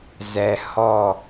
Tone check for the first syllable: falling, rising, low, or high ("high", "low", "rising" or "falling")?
low